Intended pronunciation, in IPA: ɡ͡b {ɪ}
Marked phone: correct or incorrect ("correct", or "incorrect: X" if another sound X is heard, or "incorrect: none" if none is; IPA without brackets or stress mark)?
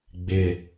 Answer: correct